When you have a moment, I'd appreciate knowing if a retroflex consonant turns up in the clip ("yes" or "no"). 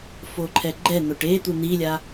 yes